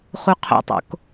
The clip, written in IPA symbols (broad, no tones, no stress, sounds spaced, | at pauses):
χ u qʰ o̰ tˤ o̰ k